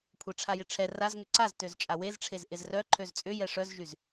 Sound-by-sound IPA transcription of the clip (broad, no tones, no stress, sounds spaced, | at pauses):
kʷʰ ɛ ʈ͡ʂʰ a j ɪ ʈ͡ʂʰ ɛ r a z ŋ ʏ ǀ a z t ø z t͡ʃʼ a w e z ʈ͡ʂʰ e z ʔ ɪ z r œ ǃʰ ø z t͡sʼ ʏ j ɛ ʂ œ z ʒ y z